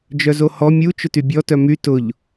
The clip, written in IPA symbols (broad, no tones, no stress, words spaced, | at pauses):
d͡ʒœzohɔ mʲu t͡ʃʊtybʲɔ tœmy tʊʎ